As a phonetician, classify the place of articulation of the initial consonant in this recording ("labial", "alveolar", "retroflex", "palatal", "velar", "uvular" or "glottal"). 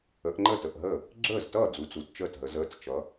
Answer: glottal